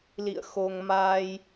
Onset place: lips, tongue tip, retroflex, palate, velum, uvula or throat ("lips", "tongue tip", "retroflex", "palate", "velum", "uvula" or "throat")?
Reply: tongue tip